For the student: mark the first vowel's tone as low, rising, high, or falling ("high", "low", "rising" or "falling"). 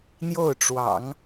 falling